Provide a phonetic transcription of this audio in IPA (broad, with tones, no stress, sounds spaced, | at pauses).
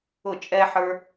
ʊ˦˨ t͡ʃʼ ɛ˦ ħ ə˞˦